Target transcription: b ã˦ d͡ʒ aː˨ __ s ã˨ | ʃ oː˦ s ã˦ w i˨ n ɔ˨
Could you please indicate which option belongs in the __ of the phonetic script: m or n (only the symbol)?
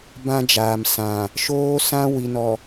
m